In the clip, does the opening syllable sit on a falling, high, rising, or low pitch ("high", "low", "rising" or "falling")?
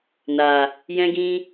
low